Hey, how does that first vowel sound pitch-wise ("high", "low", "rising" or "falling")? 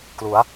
rising